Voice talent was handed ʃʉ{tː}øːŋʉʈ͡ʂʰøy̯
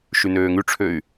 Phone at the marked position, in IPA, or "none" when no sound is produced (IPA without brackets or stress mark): n